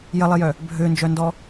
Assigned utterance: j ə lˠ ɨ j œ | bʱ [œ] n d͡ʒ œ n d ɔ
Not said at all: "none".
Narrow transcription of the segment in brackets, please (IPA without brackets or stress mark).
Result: ø